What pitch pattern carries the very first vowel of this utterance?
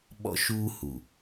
high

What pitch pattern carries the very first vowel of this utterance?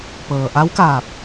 low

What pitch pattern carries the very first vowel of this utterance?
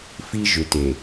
high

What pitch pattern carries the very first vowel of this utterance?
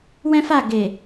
high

